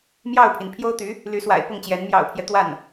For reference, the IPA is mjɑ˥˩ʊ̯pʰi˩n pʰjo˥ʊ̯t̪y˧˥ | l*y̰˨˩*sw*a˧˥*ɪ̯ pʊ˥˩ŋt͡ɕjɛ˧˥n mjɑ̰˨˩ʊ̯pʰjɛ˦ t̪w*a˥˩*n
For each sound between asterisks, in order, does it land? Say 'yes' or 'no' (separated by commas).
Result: no, no, yes